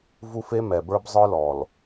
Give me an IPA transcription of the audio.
v u˦ f e˦ m ɛ˨ b ə˞˦ b zˤ ə˞˦ l ɔ˨ l

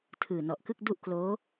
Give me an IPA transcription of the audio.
tʰ ɯː˨˩ n ɔ˨˩ ʔ k ɯ˥˩ k̚ d u˥˩ ʔ k l oː˦˥

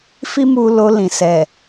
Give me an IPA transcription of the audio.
f i˦ m u˧ l o˧ l ĩ˨ s ɛ˨

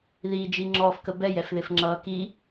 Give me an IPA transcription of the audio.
ð i d͡ʒ i ŋ͡ǁ ɔː f k ə b ɛ j ɛ f ð ɪ f ŋ͡ǁ ʌː k i

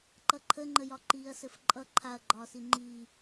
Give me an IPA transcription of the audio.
ǃ ʌ ǃʰ ə ŋ͡ǃ ə j ɒ ǃ iː ɐ̯ s ɘ f ǃʼ ʌ ǃʰ a ɐ̯ ɡ͡ǃ ɒː s i ŋ͡ǃ iː

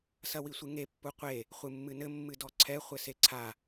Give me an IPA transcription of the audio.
s ɐ w i sʷ ɨ ŋ e pː u qʷ e | χʷ ɨ mː ɨ n ɘ mː ɨ d ɔ ǀʰ ɛ χʷ ɘ s e ǀʰ a

